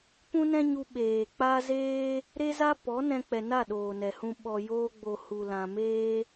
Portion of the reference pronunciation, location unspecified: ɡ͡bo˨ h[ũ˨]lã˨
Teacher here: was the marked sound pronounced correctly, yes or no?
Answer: no